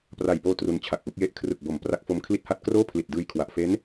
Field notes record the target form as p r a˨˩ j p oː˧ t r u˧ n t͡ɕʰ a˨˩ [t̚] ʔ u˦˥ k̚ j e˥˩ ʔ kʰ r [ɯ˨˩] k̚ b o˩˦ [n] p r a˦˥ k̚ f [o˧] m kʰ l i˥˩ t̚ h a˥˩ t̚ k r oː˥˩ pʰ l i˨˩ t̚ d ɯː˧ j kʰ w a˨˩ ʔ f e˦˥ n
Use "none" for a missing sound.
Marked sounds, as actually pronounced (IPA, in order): k̚, ɯ˨˩, m, o˧

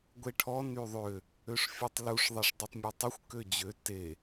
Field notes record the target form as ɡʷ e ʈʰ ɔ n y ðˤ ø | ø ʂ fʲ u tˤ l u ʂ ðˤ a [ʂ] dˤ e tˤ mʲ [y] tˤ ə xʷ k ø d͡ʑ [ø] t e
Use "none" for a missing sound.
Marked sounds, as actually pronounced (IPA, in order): ʂ, u, ø

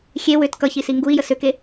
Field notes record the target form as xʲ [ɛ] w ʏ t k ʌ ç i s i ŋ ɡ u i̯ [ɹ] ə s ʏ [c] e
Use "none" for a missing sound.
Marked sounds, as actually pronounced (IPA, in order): e, j, k

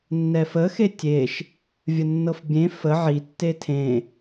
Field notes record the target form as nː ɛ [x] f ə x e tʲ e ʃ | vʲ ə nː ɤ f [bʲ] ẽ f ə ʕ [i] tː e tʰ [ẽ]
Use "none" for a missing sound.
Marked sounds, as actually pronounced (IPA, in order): none, bʲ, i, ẽ

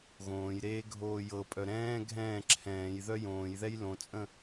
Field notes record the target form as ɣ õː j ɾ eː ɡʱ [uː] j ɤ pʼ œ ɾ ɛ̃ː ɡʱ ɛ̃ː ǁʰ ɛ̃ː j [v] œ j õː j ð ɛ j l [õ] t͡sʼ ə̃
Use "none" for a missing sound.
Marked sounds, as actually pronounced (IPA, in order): oː, ð, õ

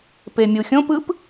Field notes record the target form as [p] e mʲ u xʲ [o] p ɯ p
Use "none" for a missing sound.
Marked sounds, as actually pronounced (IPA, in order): p, õ

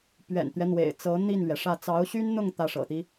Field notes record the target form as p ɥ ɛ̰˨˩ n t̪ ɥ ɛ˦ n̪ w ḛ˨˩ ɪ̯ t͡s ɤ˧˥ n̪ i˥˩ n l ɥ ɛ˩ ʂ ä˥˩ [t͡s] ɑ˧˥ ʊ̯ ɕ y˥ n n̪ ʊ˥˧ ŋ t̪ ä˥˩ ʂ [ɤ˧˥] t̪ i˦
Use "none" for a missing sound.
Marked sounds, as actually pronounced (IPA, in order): t͡s, ɤ̰˨˩

